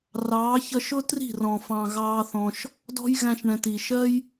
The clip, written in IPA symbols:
r ɑː˨˦ ç ʌ˧ ʃ ʊ˦ t r i̤˦˨ r ɔ̃˨ f ɑ̃˨ ɣ ɑː˧ θ ɔ̃˧ ʃ | d ɔ̤˦ j ɣ æ̃˧ ʃ ɳ ɛ̃˨ t i˨ ʃ ɜ˦ j

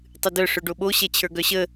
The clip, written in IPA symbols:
tˤ ɨ d œ ʂ œ ɖ o ɓ o ɕ ɛ t͡ɕʰ ə˞ ɡ œ ɕ ə

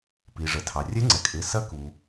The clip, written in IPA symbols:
p i˩ ʐ ə˩ tʰ ɑ˩ rʲ ɛ˧˥ ŋ͡ǀ ɛ˩ kʼ ɪ˩˧˩ s ɐ˧˥ k u˩

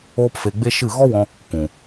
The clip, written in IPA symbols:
oː˦ p f e˧ ɡ͡b e˦ ʃ ɨ˦˨ ɣ ɔ˦ w ɔ̃˧ | k ũ˨

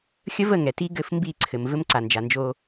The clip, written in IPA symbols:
xʲ ə˦ v ə˦˨ ŋ ɛ˨ t i˦ ɡ ɘ˦˨ f m b i˦˨ ǀʰ ɘ˨ m v ɘ˦ m ǀ a˨ n d͡ʒ a˨ n d͡ʒ o˦

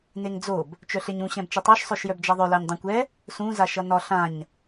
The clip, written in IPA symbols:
n e ŋ d͡z o b | t͡ʃ œ ɬ e ɲ ũ ɕ ɛ̃ b t͡ʃ ʌ tˤ œ ʃ sˤ œ ʃ j œ b d͡ʒ a ðˤ œ l a ɲ dˤ ɛ̃ kʷ ɛ | s ũ z a ʃ ʌ n ɒ ɬ ã ɲ

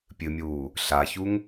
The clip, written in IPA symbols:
pʲ ɨ mʲ uː | ɬ a ç u ŋ

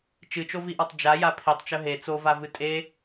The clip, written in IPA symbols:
t͡ʃ ɨ t͡ʃ o v i ʔ a tˤ d͡ʒ a j a pʰ i tˤ t͡ʃ ɵ ɦ e t͡s o v a v ɨ tʼ e

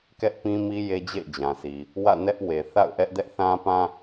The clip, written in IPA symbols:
k ɛ˦ ʔ p ĩ˦ m i˦ j e˦ d͡ʑ ḛ˦˨ ɪ̯ d͡ʑ ã˨ sʰ i˨ | w ä̰˦˨ n ɛ˦ ʔ w e˨ θ a̰˦˨ ʊ̯ ʔ ɛ˦ ʔ d ɛ˦ ʔ θ ã˦ p ã˦

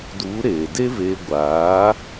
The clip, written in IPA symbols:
d u˨˦ ɾ eː˨ d e˦ v eː˧ ɡʷ aː˨˦

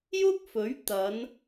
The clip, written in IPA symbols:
j ʊ˥ k̚ f ɵ˨˥ ɥ t̪ ɐ˨˧ n

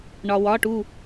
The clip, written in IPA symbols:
ɳ ɒ˩ w ɒ˩˧˩ ʈ u˥˩

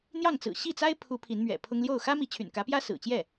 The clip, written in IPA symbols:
n̪ j ɑ˥˩ ŋ t͡s ɹ̩˨˩ ɕ i˥˩ t͡s a˥ ɪ̯ pʰ u˧˥ pʰ i˧˥ n m ɥ ɛ̰˨˩ pʰ ʊ˥ ŋ l j o˥˩ ʊ̯ x ä˥ m i˧˥ t͡ɕʰ y̰˨˩ n k ä˧˥ p j ä˥ s ɹ̩˨˩ t͡ɕ j ɛ˥˩

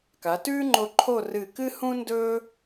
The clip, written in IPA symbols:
k a˩˧ t ʉː˥ ŋ͡ǃ o˧ ǃʰ o˥˧ r ɨ˧˩ k ɨ˥ h ũ˥ n d ɵː˥

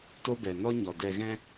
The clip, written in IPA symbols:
t o˦ b ɛ˨ n ɔ˦ ɲ ɔ˨ d ɛ˧ ɣ ɛ̃˦

